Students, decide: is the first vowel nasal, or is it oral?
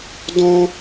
nasal